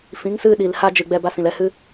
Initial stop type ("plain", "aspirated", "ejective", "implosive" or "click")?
implosive